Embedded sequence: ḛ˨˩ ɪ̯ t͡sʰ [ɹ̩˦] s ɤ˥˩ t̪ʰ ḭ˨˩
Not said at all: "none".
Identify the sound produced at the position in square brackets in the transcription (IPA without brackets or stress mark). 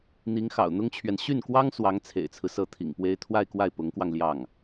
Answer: ɹ̩˦